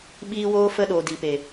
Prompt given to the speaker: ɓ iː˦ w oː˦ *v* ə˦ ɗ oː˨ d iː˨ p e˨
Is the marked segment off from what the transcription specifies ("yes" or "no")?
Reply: yes